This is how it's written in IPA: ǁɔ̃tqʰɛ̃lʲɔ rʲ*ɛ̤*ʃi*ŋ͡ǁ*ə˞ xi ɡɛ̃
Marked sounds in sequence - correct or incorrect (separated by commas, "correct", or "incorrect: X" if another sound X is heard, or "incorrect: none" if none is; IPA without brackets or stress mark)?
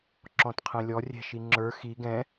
correct, correct